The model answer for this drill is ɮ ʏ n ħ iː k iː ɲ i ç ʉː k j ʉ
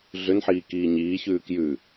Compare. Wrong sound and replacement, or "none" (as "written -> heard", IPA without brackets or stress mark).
i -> iː